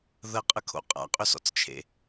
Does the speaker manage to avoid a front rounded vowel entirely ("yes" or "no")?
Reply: no